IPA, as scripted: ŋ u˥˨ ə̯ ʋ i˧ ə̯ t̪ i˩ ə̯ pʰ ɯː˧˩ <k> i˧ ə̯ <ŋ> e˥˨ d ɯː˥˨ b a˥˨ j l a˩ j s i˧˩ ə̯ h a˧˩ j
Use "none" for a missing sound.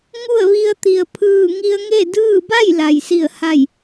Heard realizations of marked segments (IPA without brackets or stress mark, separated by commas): ŋ, ŋ